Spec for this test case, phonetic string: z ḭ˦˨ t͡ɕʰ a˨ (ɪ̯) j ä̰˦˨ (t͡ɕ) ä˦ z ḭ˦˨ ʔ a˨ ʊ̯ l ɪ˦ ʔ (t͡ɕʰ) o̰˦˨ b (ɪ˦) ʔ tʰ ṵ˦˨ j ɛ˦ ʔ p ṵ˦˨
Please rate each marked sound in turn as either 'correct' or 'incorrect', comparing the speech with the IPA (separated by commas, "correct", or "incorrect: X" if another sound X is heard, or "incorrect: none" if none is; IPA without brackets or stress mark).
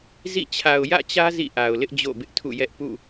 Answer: incorrect: ʊ̯, correct, incorrect: d͡ʑ, correct